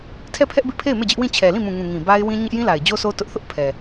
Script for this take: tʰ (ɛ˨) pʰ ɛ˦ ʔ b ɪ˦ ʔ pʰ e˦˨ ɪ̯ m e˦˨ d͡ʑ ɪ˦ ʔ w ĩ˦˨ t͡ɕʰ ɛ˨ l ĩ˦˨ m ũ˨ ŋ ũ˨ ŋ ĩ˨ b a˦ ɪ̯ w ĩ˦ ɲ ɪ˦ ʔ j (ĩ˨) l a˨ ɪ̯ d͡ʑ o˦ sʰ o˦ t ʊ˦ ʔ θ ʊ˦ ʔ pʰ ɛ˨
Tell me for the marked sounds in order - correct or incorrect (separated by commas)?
incorrect, incorrect